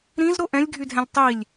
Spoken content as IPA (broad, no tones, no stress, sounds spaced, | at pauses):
ɾ ĩ z ɾ o ʔ ɛ̃ lʲ ɡʱ y dʱ ɛ̃ lʲ tˤ i lʲ